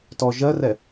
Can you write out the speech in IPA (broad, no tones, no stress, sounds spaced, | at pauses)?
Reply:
t ɔ ʒ ɜ r ɛ